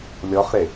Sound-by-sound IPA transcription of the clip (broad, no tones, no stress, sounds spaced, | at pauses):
lʲ ɔ χ ɾ e